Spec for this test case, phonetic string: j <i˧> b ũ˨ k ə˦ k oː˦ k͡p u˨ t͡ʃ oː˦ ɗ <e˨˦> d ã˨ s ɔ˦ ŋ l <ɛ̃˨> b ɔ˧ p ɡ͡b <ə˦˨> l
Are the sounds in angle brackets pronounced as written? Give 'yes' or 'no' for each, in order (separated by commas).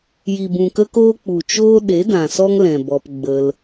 no, yes, yes, no